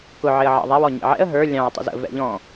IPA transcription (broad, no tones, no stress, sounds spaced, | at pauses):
k ʊ ʕ ɪ ə̯ ʕ ɑ̰ ðˤ æ w ɔ ɲ ḭ ʕ ɛ̰ ə̯ ɦ ə˞ lʲ ɑ̃ ə̯ tˤ ṵ z ə̰ v ɛ̰ ʎ ɔ̃